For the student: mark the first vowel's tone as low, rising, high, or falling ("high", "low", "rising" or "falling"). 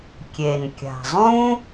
low